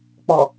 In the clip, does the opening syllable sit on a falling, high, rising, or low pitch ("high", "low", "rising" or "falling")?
low